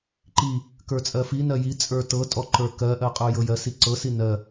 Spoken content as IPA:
ǃi | kə˞t͡sʼɜfi nɜji t͡sʼə˞tɤtʼɔ ǃə˞kɜ ʔɜqʼə˞jɤjɜs iǀɤsi nɜ

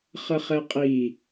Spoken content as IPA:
χəχɛqʼi

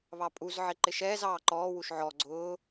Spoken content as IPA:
βɑpʼuzʕɪ ǃɪʃɛːzɑː ǃɔːwuʃ ʕɔ ɡ͡ǀʊː

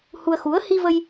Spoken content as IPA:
hu˧ə̯xu˨˦ə̯ hi˧ və˧j

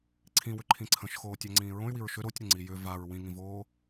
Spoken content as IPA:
ǀʰĩwʏǃʰĩ ǀʰə̃ʃxoːtʲaŋ͡ǀĩː ɹõy̯wiɹ ʃʏ ɾotʲɾəŋ͡ǀi jʏ vaɹ wĩŋĩvoː

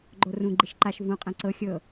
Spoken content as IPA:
ɡ͡ǃorũɡ͡ǃiʃ ǃaʃ vũqʼɛ̃ ǀɤ xʲɤ

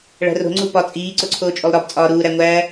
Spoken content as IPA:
ɭæ̤ro̤ ŋ͡ǀupɒ t͡sʼiː ǀoǀʰoːt͡ʃʼolˠɾɒb t͡sʼɒːɾuː ɾæŋʷæː

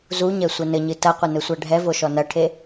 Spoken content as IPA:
zuɲɛ sʷɛnɘɲɨ tɐqʷɐ nɘsʷaɖʱɛvo ʃɔnɐʈʰe

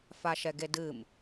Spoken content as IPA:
faʃɛɡedɨm

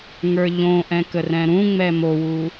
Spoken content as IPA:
ŋə˞ʎõʔɛ̃ kərɛ̃ɾũŋ͡mɛ mowu

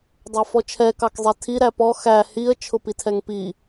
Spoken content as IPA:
dˤɑfɔt͡ʃʰɛ kɑkzˤɛtʰi ɾæpɔ xæ hiə̯ t͡ʃʰʊpitʰɛŋpi

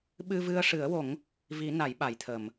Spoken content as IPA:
ɓɨ˧vɨ˧ə̯ʂɨ˨˩˦ə̯wo˨˩˦ŋ | vi˨˩˦ na˨˩˦jɓa˨˩˨jt̪ʰə˨˩˨m

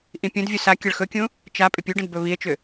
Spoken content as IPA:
ʔĩpʲũdvʲu sa kʲəɭxɵkʲũ | t͡ʃa pʼʏpʲuɖə̃d bɵβie̯t͡ʃʏ

